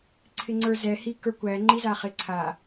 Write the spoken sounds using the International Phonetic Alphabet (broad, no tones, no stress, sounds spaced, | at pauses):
ǀʰ ɪ ŋ͡ǀ ə˞ z ɛ h i k ə˞ kʷ æ ŋ͡ǃ i z a χ ɪ ǀʰ a